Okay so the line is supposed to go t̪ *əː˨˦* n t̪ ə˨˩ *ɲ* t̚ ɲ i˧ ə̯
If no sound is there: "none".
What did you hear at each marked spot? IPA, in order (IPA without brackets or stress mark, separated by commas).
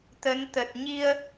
ə˨˦, none